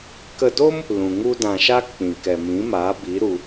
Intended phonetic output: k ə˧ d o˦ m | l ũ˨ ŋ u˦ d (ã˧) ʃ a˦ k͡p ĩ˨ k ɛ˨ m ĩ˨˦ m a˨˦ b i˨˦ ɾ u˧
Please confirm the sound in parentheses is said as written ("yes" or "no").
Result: yes